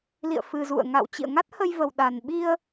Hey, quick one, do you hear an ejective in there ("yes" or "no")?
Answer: no